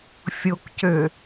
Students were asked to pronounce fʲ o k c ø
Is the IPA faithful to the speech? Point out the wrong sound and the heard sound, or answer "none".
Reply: none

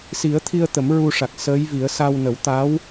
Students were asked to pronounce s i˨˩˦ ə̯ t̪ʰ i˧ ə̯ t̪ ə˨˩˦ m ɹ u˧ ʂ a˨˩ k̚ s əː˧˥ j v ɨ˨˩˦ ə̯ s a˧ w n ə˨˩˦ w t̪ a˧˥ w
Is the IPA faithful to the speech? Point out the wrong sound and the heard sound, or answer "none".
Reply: ɨ˨˩˦ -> i˨˩˦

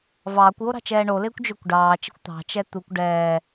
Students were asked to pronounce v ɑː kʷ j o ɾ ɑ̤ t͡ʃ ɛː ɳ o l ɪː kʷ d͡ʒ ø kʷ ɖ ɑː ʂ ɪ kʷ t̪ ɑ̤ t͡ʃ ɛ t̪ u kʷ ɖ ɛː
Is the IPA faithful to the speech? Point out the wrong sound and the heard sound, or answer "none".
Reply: ʂ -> t͡ʃ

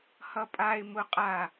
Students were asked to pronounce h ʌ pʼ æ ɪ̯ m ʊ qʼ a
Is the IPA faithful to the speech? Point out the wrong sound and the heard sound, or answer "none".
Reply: æ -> a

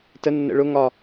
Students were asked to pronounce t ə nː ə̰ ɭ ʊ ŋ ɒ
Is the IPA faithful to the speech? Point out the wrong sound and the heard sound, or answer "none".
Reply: none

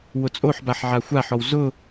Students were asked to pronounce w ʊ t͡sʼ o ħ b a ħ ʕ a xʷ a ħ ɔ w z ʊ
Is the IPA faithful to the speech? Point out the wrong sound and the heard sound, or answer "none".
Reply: none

